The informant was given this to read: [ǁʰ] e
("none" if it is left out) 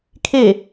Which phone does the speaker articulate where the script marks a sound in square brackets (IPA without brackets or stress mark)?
kʰ